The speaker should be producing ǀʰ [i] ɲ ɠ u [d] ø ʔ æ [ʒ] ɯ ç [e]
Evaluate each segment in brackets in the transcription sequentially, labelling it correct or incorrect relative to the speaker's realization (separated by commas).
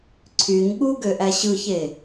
incorrect, incorrect, incorrect, correct